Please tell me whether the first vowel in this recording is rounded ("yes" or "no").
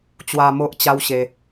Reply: no